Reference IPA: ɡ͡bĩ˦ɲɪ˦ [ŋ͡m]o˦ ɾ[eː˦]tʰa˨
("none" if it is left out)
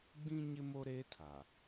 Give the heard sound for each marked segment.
m, eː˦

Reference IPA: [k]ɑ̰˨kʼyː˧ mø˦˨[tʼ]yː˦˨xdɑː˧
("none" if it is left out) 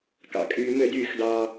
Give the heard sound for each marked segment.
k, d

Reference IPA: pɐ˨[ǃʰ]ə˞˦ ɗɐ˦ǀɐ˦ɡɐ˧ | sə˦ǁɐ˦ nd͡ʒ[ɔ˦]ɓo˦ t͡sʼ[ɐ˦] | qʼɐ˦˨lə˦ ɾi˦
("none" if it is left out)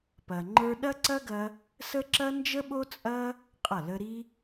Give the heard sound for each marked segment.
ŋ͡ǃ, ə˦, ɐ˦

